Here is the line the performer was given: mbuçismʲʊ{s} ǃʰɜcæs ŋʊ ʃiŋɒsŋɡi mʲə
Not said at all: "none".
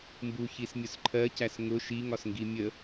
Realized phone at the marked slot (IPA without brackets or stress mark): s